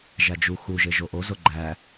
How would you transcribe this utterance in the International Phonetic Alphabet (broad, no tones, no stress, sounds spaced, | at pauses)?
ʒ æ d͡ʒ u x u ʒ e ʒ o ʔ o z o ɡ͡ǃ æ